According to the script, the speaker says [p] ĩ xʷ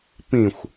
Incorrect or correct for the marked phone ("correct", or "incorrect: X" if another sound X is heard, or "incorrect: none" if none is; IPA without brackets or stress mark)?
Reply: correct